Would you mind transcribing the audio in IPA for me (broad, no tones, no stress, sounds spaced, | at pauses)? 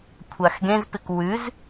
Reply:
kʷʰ a x ɡ ẽ z p ɪ k w ʉ z